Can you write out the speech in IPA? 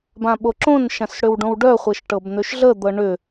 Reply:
b ã ɓ o ǁ õ n ʃ ã s ɽ ʏ w ɖ õ w ɖ œ χʷ ə ʃ ʈ ɤ b n̪ ø ʃ ɮ ə d̪ ɤ ɳ ʏ

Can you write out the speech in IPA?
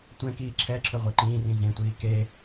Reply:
tʷ ɛ̃ k iː ǁʰ ɛ ǁʰ ɵ ʁʷ ɛ ǃ ĩː r ĩ z ẽ tʷ iː k e

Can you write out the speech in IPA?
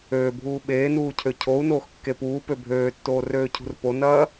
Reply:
øː bʱ uː ɓ eː n uː cʰ ø cʰ o u̯ n oː x kː e p uː p ø bʱ øː tː oː r øː cʰ ṳ r p o n ɐː

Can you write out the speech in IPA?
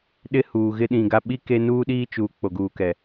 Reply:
ɗ ɪ˦ h uː˨ ɣ ɪ˦ ɗ ĩ˨ ɡ a˦ ɓ i˦ k e˦ n uː˦ ɗ iː˦ t͡ʃ uː˨ k͡p o˨ ɡ uː˨ k ɛ˨

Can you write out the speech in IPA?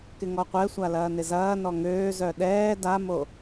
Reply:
k ɪ ŋ ɔ qʷ ɛ sʷ a l ɐː n ɪ z ɐː n ɔ ŋ øː z œ ɗ ɛː d a m o

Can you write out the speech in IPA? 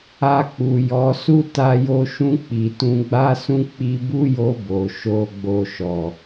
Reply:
a˧ k͡p u˨ j ɔ˨˦ s u˦ t a˧ j o˧ ʃ ũ˧ k͡p i˨ t ũ˧ ɡ͡b a˦ s ũ˦ k͡p i˧ b u˦ j o˧ b o˨ ʃ o˧ ɡ͡b o˧ ʃ ɔ˨

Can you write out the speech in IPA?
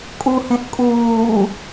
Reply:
kʼ u h ẽ ʔ kʼ uː

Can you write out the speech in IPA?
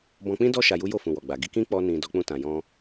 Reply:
b ɔ̃˧ k͡p ĩ˦ d ɔ˦ ʃ a˧ j u˦ j o˦˨ f ũ˨ w ɔ˨ ɡ͡b a˨ ɡ i˧ k ĩ˦ k͡p ɔ˧ n ĩ˨ d ɔ˨˦ k͡p ũ˧ t ã˨ j ɔ̃˧

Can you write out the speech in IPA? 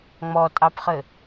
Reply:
ŋ͡m ɔ tʼ ɑ p χ ɘ

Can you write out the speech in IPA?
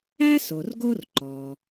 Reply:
æ˥ s o˩ r ɡ o˥ r ǃ ɔ˩

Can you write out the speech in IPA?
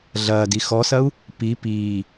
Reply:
ɮ ɐː d i x ɔ s ɐ u̯ | p i p iː

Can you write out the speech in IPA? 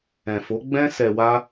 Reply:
ɛ̃˨ f o˨˦ ɡ͡b ɛ̃˦ s ɛ˧ w a˦

